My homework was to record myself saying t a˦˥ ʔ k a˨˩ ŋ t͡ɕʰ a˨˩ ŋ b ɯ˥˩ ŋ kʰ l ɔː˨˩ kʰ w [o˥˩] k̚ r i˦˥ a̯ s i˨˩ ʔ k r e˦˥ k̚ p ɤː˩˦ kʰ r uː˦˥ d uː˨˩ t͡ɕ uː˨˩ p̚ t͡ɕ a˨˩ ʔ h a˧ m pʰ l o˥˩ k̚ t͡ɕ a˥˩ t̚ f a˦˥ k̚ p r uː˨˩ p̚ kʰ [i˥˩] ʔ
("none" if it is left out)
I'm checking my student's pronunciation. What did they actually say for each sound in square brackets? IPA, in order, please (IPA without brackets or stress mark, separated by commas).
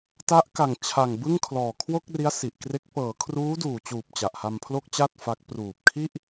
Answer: o˥˩, i˥˩